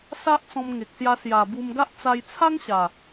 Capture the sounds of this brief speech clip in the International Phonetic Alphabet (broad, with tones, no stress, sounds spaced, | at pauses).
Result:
s a˦ ʔ t͡s ɔ̃˧ m ŋ e˨ k̚ s j a˧ s j a˨˩ b u˧ m ɡ a˦ ʔ t͡s a˧ j t͡sʰ a˦ ŋ ɕ a˨˩